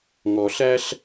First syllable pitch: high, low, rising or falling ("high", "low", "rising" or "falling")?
low